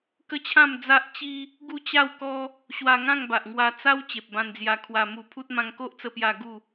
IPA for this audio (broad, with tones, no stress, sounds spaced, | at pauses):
k ə˦ t͡ɕʰ ã˥˧ m d͡z a˦ ʔ t͡ɕ i˦ | ɡ u˥˧ t͡ɕ a˥˧ w k ɔ˦ | ɕ w a˧ ŋ ã˥˧ ŋ b a˨ ʔ ŋ w a˧ t͡s a˦ w t͡ɕ e˨ p̚ b ã˧ n d͡z j a˧ kʰ w a˧ m u˧ pʰ u˦ t̚ m ã˧ ŋ k o˦ ʔ t͡s ə˧ p j a˧ ɡ u˥˧